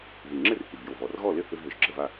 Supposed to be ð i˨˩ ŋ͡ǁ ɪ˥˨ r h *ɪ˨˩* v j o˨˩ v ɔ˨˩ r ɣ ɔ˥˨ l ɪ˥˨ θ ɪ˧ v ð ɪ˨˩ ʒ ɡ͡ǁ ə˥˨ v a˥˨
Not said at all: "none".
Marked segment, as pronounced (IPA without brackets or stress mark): i˨˩